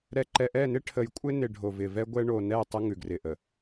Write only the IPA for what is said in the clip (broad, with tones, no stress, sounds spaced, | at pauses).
ɾ ɛ˨ ǃ ɛ˨ ʔ ɛ˦˨ n ɪ˦ ʈʰ ə˨ j kʷʼ ɪ˦ n ɪ˨ ɖʱ o˨ v ɪ˨ v ɛ˦ ɡʷ ɛ˦ ɳ o˨ n ɛ˦˨ tˤ ə˦ ŋ ʉ˨ ɡ r ɪ˨ ʔ ə˨